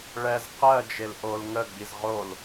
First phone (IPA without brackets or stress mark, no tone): ɭ